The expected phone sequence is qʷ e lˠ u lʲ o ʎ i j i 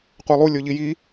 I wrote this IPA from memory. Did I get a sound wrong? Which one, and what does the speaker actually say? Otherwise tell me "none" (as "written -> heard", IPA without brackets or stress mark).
none